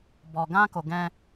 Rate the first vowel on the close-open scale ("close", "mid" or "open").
mid